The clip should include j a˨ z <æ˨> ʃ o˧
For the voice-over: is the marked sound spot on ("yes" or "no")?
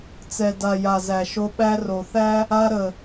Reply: yes